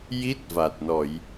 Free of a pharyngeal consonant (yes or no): yes